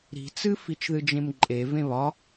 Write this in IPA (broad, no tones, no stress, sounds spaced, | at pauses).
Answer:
ɾ i̤ t͡s ɨ f i t͡ʃ ð ɨ d͡ʒ ẽ m ǃʼ e v ẽ β ɒ